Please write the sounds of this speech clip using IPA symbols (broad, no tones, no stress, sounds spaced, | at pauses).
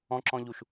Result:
ɔ̃ ǁ ɔ̃ ʎ u ʃ